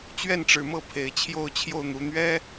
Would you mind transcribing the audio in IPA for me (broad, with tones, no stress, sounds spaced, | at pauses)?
t͡ɕ ɥ ɛ˥˩ n ʈ͡ʂ ɻ̩˨˩ m ɤ˥˩ pʰ e˨˩ ɪ̯ t͡ɕʰ j o˥˧ ʊ̯ t͡ɕʰ j o˥˩ ʊ̯ n̪ u˨˩ n̪ ɥ ɛ˥